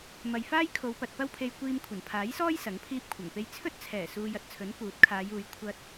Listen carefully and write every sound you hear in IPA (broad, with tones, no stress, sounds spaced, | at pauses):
m ɐ˨ j f aː˥ j kʰ o˨˧ w p ɐ˨ t̚ p ɐ˥ w pʰ e˧ j kʷ iː˧ m kʷʰ ɐ˨˩ n pʰ aː˨˥ j s ɔː˥ j s ɐ˨˥ ŋ pʰ iː˥ p̚ kʷʰ ɐ˨˩ ŋ p e˥ j t͡sʰ ɵ˥ t̚ t͡sʰ ɛː˨˩ s uː˧ j ɐ˨ t̚ t͡sʰ ɵ˨˥ n k uː˨˥ t̚ kʰ aː˨˧ j uː˨˧ j kʷʰ ɐ˥ t̚